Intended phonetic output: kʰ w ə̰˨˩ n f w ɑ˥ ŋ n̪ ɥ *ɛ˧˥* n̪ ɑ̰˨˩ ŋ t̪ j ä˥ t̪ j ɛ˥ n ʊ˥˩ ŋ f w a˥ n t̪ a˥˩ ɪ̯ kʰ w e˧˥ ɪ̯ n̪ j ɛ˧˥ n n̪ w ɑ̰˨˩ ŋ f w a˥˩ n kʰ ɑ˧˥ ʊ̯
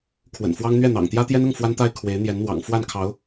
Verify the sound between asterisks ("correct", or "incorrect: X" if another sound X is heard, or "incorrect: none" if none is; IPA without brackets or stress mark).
incorrect: ɛ˥˩